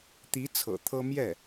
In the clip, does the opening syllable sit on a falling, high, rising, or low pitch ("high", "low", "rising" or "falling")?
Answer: rising